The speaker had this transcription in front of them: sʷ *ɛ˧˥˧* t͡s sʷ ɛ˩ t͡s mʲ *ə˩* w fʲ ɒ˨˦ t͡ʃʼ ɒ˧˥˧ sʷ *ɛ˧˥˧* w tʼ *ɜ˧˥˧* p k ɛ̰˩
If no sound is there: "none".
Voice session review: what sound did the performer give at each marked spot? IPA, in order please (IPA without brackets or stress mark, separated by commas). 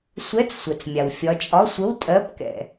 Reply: ɛ˧˥˧, a˩, ə˧˥˧, ɜ˧˥˧